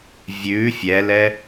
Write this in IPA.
vʲ ʉ fʲ ɛ l ɛ

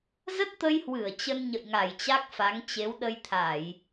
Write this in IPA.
z ə˦˥ t̚ t̪ ə˧ j h w ɨ˧˩ ə̯ t͡ɕ ə˧ n ɲ ə̰˧˨ j ŋ a˧˩ j t͡ɕ a˦˥ k̚ f a˨˦ ŋ t͡ɕ e˨˦ w ɗ ə˧ j t̪ʰ a˧˩˨ j

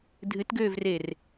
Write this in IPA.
dʱ ɨ t ɡ øː v r e r

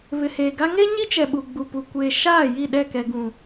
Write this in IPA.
β ɪ˨ h eː˨ ɡ a˦ ŋ e˦ ɲ i˦ t͡ʃ ɛ˨ ɓ u˨ ɡ͡b u˨ p u˨ kʷ eː˨ ʃ aː˦˨ j i˦˨ ɗ ɛ˦˨ k ɛ˨ ɡ ũ˨

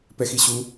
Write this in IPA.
p ɛ x i ɕ u

